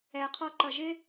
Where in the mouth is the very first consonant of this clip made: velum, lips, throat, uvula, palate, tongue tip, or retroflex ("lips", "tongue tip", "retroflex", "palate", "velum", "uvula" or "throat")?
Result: uvula